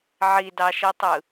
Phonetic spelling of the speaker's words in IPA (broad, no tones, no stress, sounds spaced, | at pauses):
ʕ i d ɑ ʃ i tˤ ɯ